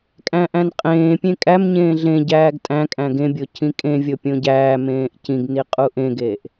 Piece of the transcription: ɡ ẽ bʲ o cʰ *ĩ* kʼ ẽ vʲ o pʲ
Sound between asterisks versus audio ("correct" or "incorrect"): correct